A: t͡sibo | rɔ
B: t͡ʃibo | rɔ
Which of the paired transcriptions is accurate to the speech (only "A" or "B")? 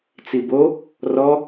A